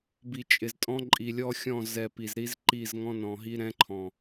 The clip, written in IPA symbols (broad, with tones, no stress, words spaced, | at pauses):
bi˨t͡ʃʼɪ˨ztʼɔ̃˦ ǃʼi˨lʲɔ˦xʲɔ̃˦˨ zɛ˨ pi˨zɾi˦zǃi˦˨z ŋɔ̃˦nɔ̃˨ɦi˦ ɾɛ̃˦ǃʰɔ̃˨